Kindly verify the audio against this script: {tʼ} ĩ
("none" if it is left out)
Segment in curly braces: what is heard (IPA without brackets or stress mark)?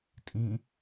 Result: tʼ